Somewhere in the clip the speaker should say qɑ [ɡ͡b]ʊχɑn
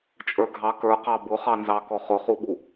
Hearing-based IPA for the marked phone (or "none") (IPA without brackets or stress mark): b